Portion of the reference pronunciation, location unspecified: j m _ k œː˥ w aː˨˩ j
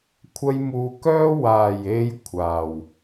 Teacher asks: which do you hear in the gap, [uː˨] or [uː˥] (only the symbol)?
uː˨